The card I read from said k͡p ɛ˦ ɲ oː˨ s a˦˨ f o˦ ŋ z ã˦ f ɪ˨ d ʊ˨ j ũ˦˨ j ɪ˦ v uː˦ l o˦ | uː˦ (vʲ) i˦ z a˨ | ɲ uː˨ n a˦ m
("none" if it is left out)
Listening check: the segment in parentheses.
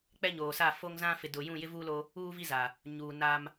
v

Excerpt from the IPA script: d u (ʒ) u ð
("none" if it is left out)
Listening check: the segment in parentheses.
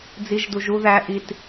ʒ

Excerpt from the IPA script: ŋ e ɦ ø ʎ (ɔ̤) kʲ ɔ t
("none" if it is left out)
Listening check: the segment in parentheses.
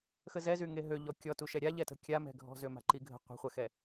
ɔ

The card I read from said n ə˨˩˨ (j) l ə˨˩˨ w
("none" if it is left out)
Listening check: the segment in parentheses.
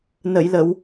j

